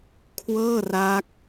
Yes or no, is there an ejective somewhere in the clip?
no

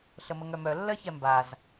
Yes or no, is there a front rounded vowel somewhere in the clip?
yes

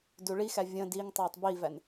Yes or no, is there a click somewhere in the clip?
no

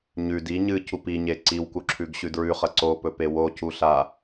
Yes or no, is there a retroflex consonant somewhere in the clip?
no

